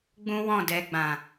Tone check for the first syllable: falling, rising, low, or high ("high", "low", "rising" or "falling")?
high